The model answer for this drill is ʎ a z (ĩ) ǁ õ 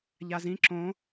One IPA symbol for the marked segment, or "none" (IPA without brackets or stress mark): ĩ